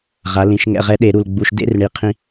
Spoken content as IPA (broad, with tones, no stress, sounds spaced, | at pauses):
ʁ a˩˧ l ĩ˩˧ ʃ ŋ ɛ̰˨˩ ʁ ɛ˧ ɗ e˧˩˧ ɾ u˨˩ l ɡ͡b u˨˩ ʃ d ḛ˧˥˧ r ɳ i˩˧ qʰ ĩ˧